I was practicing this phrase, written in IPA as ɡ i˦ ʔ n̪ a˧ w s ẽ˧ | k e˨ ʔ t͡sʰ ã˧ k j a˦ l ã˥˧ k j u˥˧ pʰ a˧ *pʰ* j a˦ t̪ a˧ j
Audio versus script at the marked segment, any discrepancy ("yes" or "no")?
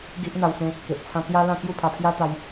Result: no